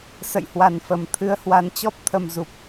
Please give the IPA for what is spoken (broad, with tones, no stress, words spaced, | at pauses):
sə̰˧˨jhwa˨˩nfə˨˩m t̪ʰɨ˧ə̯hwa˨˦nt͡ɕɔ˦˥p̚ t̪ʰə˨˩mzu˨˩p̚